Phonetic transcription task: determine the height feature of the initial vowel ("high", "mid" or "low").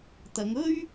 low